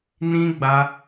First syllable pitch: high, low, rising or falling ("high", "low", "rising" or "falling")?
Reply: high